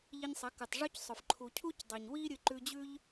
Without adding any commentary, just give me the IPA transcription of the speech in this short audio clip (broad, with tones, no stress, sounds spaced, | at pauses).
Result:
ʎ i˧ ɲ sˤ ɐ˨˦ k ɨ˨ tˤ ʐ ʉ˦ c sˤ ɵ˨ f ǃʰ u˨ cʰ u˦ c dˤ e˨ ɲ w i˦ ɾʲ ɨ˧ ǃ ʉ˧ d͡ʑ ʉ˦ ʎ